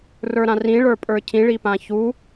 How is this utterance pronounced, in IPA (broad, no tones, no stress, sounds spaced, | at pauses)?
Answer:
r ə˞ ɾ ã r ĩ ɭ ə˞ pʼ ə˞ cʰ ĩ ɭ i p ã ç u